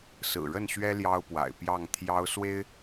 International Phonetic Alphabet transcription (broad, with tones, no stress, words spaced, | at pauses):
sɹ̩˨˩ɻə˥˨nɕɥɛ˦ ljɑ˦ʊ̯pwa̰˨˩ɪ̯pjɑ˥˨ŋ t̪ʰjɑ˦ʊ̯swe˦ɪ̯